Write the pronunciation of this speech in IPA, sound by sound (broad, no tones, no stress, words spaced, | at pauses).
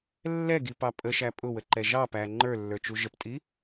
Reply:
lːɛɡipɑ pʼəʃæ pʼʊwəǃɛ ʒɑpæ ŋ͡ǃə˞lːə˞t͡ʃu ʒəptʼi